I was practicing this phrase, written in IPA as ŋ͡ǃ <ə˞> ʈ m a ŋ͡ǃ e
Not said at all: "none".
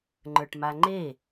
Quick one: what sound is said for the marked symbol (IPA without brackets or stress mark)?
ə˞